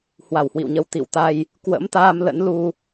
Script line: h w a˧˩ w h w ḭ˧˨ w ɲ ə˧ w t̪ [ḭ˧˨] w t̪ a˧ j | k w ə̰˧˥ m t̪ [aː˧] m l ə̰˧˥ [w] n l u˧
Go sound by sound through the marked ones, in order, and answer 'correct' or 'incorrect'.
correct, correct, incorrect: none

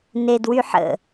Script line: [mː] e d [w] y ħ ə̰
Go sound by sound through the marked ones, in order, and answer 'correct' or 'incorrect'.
incorrect: n, correct

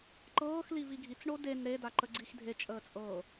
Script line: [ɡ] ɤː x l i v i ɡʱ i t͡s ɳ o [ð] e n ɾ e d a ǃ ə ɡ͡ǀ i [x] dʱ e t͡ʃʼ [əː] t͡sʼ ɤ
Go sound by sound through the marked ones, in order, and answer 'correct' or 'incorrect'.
incorrect: ǃ, incorrect: d, correct, correct

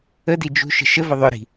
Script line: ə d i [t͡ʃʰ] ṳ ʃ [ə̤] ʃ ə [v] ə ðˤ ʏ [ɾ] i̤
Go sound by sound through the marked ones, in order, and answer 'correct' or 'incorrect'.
incorrect: d͡ʒ, correct, correct, correct

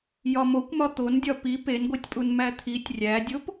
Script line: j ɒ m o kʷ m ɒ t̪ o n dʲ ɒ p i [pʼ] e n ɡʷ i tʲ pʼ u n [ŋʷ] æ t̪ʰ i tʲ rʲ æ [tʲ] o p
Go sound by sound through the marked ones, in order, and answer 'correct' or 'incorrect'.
incorrect: p, incorrect: m, incorrect: dʲ

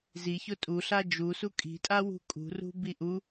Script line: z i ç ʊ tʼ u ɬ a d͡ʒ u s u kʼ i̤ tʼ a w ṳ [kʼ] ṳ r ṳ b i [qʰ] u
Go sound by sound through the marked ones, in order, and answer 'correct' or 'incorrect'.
correct, incorrect: ʔ

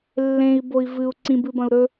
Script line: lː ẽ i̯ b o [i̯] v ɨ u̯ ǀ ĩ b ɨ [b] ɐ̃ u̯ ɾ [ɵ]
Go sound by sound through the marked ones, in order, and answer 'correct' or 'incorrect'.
correct, correct, correct

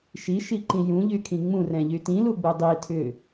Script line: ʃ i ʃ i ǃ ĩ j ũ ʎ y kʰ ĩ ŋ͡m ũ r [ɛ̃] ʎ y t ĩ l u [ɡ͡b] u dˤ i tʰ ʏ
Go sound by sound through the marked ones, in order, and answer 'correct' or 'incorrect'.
correct, correct

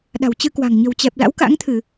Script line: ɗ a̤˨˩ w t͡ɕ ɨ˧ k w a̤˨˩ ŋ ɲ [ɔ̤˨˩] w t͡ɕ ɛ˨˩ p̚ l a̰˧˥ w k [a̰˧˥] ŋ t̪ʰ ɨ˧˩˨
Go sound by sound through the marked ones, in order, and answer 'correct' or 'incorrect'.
incorrect: ə̤˨˩, correct

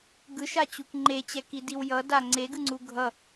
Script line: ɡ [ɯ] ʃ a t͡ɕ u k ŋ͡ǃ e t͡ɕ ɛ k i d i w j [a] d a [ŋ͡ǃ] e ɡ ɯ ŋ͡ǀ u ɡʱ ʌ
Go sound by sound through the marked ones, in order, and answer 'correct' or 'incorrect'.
correct, incorrect: ʌ, incorrect: ŋ͡ǀ

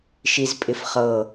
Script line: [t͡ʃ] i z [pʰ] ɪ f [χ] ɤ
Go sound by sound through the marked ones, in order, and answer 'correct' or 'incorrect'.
incorrect: ʃ, incorrect: pʼ, correct

